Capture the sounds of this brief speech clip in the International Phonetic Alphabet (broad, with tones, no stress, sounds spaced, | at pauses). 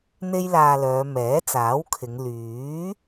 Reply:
n̪ e˥ j l aː˧ l œː˨˧ m ɛː˨˥ t͡s aː˨˥ w kʰ ɪ˨˧ ŋ l yː˨˥